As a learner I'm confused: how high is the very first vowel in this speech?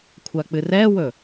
low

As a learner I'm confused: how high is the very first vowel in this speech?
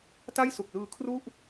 low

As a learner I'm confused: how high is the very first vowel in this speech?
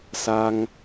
low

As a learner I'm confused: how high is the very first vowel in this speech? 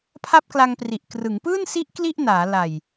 low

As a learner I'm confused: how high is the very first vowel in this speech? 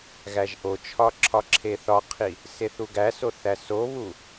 low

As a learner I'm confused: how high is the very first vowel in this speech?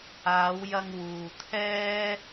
low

